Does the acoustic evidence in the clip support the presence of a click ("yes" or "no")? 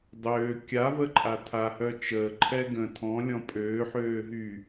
yes